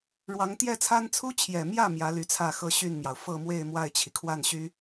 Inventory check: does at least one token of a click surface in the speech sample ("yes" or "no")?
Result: no